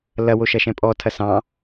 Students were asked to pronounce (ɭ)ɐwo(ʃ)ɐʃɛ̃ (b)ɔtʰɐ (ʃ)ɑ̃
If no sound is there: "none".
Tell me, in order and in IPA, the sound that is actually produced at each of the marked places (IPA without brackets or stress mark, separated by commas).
l, ʃ, pʼ, s